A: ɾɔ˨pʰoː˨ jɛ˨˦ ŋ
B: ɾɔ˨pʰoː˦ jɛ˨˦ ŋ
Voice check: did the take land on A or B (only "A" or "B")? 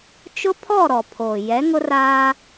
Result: A